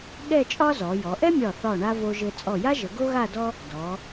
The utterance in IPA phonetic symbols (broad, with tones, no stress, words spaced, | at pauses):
ɠɛ˥˧t͡ʃʼɒ˥zɔ˩˧jɔ˩˧ ʔɛ˥mʲɒ˧˩θɒ˧˩ɳa˧ vo˧ʒɘ˧ t͡sʼɔ˧˩ja˥ʒə˩˧ ɡo˥ɣa˥˧dɔ˥ | dɔ˩˧